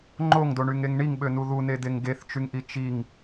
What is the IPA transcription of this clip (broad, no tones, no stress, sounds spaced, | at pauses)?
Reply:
ŋ͡ǃ o ŋ d o ɳ y ŋ e ŋ ɳ i ŋ ɓ ø n u ð u n e d e ŋ ɡ e θ t͡ʃ y ŋ ʔ i t͡ʃ i ŋ